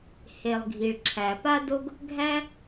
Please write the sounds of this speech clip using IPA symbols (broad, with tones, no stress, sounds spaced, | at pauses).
h e˩ lˠ ɡʱ i˩ ɭ ǁʰ æ˩ p a˥ d o˥ ɡ | ɡʱ æ˥